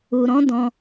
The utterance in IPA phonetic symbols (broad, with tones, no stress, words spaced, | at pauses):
u˨ɾɔ̃˨˦dɔ̃˧